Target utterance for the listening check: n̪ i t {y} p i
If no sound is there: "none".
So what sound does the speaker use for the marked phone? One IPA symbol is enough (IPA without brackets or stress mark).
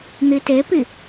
e